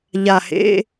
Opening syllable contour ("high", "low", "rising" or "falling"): low